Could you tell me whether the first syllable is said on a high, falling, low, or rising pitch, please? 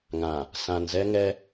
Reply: low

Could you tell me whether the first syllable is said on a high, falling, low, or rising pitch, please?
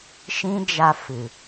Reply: high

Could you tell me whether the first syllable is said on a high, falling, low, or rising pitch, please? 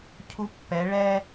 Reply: high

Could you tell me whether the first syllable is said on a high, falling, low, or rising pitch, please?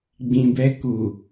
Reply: low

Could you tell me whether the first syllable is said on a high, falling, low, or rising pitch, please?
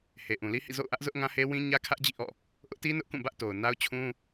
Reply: low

